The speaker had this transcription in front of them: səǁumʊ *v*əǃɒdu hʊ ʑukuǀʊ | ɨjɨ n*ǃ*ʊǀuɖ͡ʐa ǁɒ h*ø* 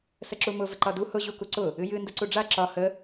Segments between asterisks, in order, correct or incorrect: correct, incorrect, incorrect

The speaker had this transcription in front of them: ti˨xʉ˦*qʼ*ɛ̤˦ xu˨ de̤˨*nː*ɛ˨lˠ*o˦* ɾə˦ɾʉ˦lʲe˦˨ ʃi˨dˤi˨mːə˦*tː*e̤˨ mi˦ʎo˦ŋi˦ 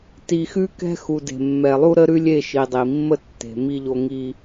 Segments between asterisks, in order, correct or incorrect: incorrect, incorrect, incorrect, correct

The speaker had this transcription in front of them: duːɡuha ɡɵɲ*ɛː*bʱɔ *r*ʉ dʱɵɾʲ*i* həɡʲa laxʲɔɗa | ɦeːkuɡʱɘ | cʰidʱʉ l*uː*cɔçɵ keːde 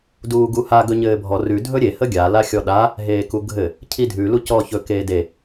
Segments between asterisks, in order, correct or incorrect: incorrect, correct, incorrect, incorrect

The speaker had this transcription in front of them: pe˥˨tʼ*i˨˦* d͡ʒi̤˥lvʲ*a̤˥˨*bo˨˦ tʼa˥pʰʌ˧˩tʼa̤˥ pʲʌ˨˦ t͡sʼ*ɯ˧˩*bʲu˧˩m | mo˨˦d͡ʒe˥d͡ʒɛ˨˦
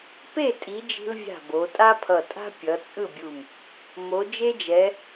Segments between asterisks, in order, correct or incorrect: correct, correct, incorrect

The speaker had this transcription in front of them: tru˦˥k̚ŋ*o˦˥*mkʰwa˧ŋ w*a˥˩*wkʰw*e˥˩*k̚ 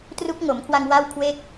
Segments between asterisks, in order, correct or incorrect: incorrect, correct, correct

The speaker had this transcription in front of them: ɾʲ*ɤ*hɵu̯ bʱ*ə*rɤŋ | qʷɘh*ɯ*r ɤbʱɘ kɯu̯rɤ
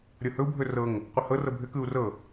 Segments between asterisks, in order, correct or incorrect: correct, incorrect, incorrect

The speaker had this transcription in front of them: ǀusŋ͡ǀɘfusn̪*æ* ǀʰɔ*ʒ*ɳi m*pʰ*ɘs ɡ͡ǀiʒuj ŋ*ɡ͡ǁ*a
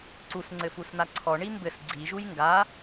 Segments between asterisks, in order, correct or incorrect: incorrect, incorrect, incorrect, incorrect

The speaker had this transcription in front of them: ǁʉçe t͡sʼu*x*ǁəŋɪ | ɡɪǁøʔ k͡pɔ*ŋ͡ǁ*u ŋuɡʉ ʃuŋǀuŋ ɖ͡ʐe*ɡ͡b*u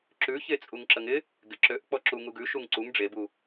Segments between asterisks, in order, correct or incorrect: incorrect, incorrect, incorrect

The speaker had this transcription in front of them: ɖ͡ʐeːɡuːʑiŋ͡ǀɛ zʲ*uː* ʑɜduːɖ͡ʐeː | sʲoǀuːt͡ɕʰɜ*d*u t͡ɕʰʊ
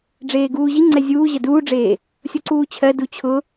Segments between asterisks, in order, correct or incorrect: correct, correct

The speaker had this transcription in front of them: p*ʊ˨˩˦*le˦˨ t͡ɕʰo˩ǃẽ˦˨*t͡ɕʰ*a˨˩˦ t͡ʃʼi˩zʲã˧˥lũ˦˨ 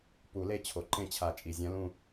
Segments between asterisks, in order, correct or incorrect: incorrect, correct

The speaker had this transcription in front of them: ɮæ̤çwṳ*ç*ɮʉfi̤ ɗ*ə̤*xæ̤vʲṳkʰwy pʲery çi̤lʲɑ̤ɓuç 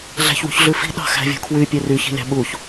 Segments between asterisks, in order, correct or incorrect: correct, incorrect

